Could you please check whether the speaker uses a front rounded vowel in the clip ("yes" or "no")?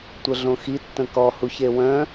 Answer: yes